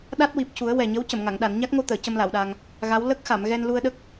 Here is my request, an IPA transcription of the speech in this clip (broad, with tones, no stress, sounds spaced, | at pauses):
ɗ a˦˥ t̚ w i˨˩ p̚ c u˨˩˦ ə̯ w ɛ˨˩ ɲ ə˧˥ w c ə˨˩˨ m ŋ a˨˩˨ ŋ ɗ a˨˩˨ n ɲ a˦˥ k̚ ŋ o˧ t̪ əː˨˩˨ c ə˧ m l a˨˩˨ w ɗ a˧ ŋ | ɣ a˧˥ w l ə˦˥ k̚ x a˨˩˨ m ɣ ɛ˧ n l u˧ ə̯ ɗ ə˦˥ k̚